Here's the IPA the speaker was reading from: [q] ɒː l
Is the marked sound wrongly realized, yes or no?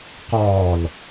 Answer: no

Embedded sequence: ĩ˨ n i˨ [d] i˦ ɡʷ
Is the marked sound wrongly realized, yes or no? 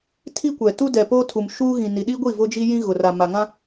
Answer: yes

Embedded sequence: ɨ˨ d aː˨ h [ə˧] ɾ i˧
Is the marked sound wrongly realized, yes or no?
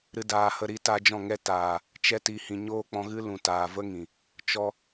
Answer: no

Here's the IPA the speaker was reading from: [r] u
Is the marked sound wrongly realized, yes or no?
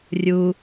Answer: yes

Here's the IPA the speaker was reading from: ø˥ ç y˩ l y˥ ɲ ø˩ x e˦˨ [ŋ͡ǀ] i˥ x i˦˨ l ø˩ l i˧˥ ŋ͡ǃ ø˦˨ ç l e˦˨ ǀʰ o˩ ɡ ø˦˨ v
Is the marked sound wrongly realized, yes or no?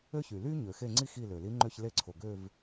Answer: no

